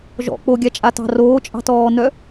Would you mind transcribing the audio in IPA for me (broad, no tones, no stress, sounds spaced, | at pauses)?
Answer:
ʒ ɔ̰ k͡p o ɡʲ a t͡ʃʼ a t ɑ̤ r oː t͡ʃʼ ɑ̤ t ɔː n œ